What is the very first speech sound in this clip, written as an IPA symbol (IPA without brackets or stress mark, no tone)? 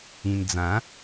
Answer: ĩ